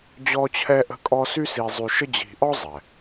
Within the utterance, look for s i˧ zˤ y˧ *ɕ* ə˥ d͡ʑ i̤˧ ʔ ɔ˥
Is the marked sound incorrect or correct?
incorrect